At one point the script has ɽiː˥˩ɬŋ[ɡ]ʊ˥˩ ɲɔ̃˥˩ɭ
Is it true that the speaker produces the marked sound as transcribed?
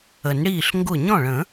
yes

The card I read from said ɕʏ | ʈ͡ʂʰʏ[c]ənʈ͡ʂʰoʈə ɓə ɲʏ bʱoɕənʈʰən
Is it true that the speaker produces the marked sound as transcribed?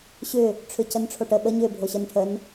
yes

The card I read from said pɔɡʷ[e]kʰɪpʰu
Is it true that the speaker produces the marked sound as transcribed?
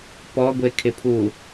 yes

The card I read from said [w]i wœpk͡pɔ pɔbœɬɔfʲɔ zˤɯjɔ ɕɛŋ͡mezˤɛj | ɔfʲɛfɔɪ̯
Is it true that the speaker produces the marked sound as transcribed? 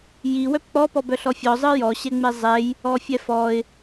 no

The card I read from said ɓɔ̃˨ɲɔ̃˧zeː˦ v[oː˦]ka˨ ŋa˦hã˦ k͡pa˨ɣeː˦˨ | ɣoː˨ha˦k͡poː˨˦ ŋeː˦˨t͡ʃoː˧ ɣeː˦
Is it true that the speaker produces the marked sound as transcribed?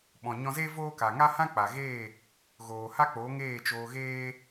yes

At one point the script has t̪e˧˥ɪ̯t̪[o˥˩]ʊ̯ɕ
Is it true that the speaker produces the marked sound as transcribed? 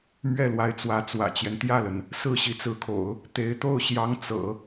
yes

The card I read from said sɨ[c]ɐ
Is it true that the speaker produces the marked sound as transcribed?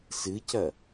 yes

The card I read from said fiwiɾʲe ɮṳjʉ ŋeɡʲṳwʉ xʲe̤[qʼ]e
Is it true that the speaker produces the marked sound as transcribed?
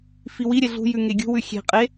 yes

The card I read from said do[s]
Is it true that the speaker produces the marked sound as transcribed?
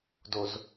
no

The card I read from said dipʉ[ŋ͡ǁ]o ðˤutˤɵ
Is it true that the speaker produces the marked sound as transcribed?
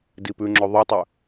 yes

